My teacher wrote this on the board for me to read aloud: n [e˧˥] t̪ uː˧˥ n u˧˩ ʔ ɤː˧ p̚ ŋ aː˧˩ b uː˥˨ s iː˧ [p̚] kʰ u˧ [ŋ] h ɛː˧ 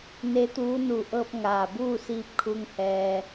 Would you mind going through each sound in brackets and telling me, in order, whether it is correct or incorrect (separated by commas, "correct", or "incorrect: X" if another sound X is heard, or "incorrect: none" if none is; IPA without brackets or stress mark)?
correct, correct, correct